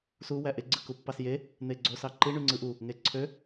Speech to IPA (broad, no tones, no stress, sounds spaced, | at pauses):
s u w æ ʔ e ɡ͡ǀ ɯ k u pː ɑ s j e | n̪ e ɡ͡ǀ o s ɑ ǃ i ɳ y ŋ͡ǀ ɯ ʔ u | ŋ e ǀʰ ø